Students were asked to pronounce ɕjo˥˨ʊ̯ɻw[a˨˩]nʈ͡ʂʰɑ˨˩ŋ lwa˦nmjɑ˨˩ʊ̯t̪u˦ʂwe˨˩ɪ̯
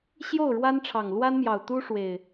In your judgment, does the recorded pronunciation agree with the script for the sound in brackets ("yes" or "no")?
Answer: no